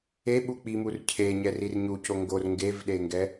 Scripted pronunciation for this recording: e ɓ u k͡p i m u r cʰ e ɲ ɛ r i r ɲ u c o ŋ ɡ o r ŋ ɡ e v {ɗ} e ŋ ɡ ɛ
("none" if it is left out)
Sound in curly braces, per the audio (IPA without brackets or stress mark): ɗ